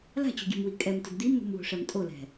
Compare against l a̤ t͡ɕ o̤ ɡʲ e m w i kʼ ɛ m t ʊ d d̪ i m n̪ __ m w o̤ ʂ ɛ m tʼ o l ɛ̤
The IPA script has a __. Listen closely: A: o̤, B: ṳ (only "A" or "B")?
B